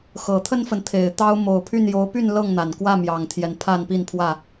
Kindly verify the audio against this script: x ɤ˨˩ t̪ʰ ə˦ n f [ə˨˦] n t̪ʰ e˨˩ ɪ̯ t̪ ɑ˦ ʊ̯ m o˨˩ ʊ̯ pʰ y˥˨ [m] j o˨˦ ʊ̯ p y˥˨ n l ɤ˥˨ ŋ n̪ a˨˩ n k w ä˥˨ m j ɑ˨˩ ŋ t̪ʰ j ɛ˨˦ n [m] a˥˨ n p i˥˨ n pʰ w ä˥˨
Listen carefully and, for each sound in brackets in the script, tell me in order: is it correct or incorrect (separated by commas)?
incorrect, incorrect, incorrect